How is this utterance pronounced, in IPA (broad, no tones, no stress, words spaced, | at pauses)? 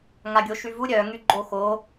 ŋaɡʲoʃyvu ɾʲœŋy ɡ͡ǃoxo